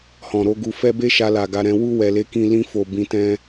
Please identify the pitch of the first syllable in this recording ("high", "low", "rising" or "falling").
low